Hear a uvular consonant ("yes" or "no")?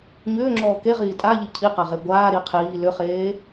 yes